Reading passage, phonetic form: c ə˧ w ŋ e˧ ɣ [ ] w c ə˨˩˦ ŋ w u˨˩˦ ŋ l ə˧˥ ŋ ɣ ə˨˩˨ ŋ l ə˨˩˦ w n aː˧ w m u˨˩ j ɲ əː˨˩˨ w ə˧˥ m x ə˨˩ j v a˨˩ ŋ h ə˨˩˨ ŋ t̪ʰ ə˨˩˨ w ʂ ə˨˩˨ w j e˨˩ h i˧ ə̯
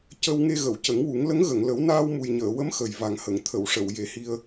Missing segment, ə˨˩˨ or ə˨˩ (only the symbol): ə˨˩˨